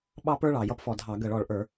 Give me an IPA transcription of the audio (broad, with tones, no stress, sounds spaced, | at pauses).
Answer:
ɓ ɑ˥ p ə˞˥ ɭ ɑ˨˩ j ʌ˥ p f ɔ˨˩ dʱ ɑ˧˩˧ ɡ ə˧˩˧ ɭ ɔ˨˩ ɭ ʔ ə˞˧˩˧